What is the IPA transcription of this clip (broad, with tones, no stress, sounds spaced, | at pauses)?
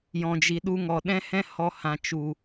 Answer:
j ɔ̃˨ d͡ʒ i˨ ɗ u˧ ŋ ɔ˨ ɗ ɛ̃˦ h ɛ̃˦ h ɔ˧ h ã˨ t͡ʃ u˨